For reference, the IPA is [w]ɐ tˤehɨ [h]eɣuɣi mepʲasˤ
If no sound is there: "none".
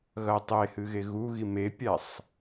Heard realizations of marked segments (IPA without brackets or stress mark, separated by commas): ɣ, ɣ